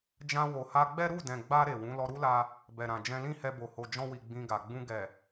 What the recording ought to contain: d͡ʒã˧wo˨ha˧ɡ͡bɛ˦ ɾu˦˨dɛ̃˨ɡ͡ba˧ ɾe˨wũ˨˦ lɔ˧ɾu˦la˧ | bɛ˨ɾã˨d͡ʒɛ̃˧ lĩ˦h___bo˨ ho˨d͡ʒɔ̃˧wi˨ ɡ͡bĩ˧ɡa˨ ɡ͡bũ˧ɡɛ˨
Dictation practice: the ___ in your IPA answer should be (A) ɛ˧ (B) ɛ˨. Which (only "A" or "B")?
A